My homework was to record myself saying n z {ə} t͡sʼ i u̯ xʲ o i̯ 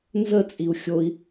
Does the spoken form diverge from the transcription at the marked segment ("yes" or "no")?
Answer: no